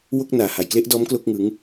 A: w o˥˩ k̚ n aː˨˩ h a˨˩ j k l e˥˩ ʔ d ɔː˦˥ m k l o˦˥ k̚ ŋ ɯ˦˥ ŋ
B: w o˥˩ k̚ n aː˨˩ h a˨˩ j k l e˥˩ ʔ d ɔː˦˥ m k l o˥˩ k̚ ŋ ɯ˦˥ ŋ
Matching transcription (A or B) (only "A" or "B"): B